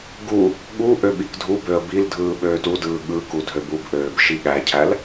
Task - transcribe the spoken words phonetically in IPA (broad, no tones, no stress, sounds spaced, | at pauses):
ɡ u | ɠ u ʔ ø ɓ i k dʱ u b ø ə̯ b i l dʱ ɯː ɓ øː t u d ɯː ɠ ɯ k u dʱ ø b u b ʔ øː b ʃ i ɠ æ cʰ æ l